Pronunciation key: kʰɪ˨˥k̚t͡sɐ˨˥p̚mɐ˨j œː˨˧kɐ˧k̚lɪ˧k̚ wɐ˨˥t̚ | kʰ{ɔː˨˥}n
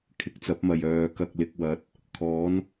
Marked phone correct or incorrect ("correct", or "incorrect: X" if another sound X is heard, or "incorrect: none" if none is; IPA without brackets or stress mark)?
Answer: correct